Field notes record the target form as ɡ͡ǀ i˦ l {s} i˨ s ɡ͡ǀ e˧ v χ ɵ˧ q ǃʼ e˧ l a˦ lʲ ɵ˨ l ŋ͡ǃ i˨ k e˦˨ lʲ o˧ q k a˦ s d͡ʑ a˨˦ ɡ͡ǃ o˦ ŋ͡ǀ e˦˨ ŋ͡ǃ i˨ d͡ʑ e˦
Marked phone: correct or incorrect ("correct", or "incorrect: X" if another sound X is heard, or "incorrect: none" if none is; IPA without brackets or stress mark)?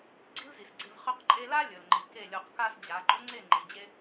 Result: incorrect: z